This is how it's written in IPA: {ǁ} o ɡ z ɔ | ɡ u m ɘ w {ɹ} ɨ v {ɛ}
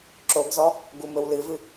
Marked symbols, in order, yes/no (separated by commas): yes, no, no